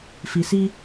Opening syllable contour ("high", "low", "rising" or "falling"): low